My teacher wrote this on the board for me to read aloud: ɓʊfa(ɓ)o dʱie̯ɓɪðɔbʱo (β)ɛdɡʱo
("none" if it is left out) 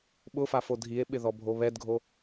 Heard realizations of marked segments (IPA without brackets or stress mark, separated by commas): f, β